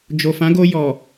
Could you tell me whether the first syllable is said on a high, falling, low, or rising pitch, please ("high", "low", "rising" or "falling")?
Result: low